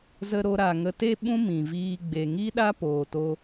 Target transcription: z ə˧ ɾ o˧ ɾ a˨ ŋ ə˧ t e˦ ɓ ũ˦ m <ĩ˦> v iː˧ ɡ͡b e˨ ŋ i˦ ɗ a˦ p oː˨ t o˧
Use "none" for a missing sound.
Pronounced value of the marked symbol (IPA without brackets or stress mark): ĩ˨